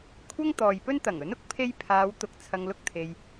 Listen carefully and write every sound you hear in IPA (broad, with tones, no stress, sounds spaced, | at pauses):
kʷʰ ɐ˥ ŋ t̪ ɔː˨ j p ɵ˥ n t̪ ɐ˨˩ ŋ ɵ˨˥ n ʊ˥ k̚ pʰ e˥ j pʰ aː˨˧ w t̪ ʊ˨ k̚ t͡sʰ ɐ˧ ŋ l ʊ˥ k̚ t̪ʰ e˨ j